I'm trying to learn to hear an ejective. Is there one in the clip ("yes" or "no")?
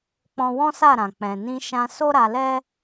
no